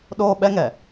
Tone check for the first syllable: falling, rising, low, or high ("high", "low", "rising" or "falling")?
high